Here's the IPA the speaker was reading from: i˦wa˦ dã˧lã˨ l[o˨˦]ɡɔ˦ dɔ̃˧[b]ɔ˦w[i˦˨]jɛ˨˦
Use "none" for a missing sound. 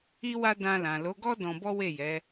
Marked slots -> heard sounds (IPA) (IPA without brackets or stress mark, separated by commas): o˨˦, b, e˦˨